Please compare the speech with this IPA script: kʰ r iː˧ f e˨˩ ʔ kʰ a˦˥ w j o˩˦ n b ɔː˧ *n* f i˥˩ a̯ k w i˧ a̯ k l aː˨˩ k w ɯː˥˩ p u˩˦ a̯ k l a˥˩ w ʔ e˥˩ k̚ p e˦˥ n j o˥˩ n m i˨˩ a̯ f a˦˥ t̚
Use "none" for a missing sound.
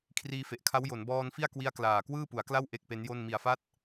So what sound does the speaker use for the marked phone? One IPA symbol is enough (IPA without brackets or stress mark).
n